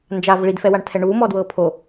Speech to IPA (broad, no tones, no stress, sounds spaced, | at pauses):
n d͡ʒ a v ɭ i d f ɛ w a ɳ tʰ ɛ ɳ uː m ɔ d w ɤː pʰ o